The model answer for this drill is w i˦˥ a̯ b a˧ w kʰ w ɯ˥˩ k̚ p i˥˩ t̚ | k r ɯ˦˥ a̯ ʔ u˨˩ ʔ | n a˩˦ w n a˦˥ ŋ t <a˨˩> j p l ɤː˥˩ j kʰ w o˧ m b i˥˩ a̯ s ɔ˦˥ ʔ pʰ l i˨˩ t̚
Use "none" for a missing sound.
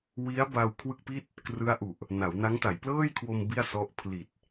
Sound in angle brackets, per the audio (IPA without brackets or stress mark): a˩˦